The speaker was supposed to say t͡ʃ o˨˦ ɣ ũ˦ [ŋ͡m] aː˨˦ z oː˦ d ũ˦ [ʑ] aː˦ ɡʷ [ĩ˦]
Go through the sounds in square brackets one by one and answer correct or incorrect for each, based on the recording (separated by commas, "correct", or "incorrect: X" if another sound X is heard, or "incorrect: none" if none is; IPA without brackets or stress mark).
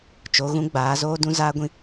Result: incorrect: ɡ͡b, incorrect: z, correct